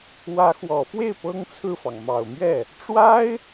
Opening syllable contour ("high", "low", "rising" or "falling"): rising